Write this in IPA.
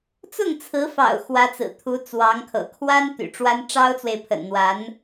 t͡sʊ˥˩ŋt͡sʰɹ̩˧˥fɑ̰˨˩ʊ̯ xwä˧˥t͡sɹ̩˨˩ t̪ʰu˧˥t͡swɑ˧˥ŋkʰɤ̰˨˩ kʰwa˥n t̪y̰˨˩ʈ͡ʂwa˥n ʈ͡ʂɑ˥ʊ̯t͡swe˨ɪ̯pʰə̰˨˩n n̪wa˧˥n

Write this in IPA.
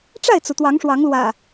ʈ͡ʂa˥˨ɪ̯t͡su˩ t̪wɑ˨˦ŋʂwɑ˨˦ŋlwä̰˨˩

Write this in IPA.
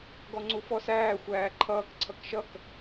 ɡɔŋ͡ǀufɔsæː xʷæːǃʰʌːk ǀʰʌkʃʌk

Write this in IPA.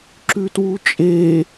ǁʉtwut͡ʃʼe

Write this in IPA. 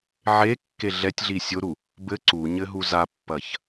ʕe kːeɮɛtʲɮi sʲoɾu | bɘ ǀuɲɘ ɦuzapːɐç

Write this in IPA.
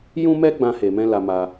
jũ˦mɛ˦ ɡ͡bã˦he˧mɛ̃˦ la˧ma˧

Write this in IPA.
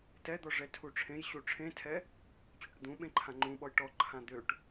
tɛd̪ɔ ʐɛtʰuʈ͡ʂʰẽjɕu ʈ͡ʂʰẽtʰɛ | t͡ɕøʈd̪ũɓẽ ǃʰãŋ͡ǃũɓɔj ʈɔǃʰã d̪øʈ

